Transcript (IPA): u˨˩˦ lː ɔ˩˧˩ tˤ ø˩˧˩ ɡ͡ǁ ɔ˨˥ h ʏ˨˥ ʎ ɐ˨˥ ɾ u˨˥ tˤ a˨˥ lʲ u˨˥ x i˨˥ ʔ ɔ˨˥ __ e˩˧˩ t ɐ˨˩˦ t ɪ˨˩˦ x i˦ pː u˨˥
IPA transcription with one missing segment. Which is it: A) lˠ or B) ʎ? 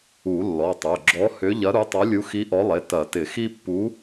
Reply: A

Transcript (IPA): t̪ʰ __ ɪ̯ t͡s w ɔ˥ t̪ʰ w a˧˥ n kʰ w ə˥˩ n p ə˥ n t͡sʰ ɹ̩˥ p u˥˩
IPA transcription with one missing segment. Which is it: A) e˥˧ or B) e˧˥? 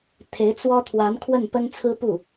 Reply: B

